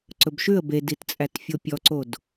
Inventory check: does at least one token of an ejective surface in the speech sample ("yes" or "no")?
yes